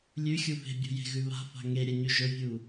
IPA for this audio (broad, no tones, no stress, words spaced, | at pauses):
lʲʉxʲu ve̤bʲṳ je̤ɣʉβa̤fa̤ ŋeɾʲɐ ɲʉʒɵvʲu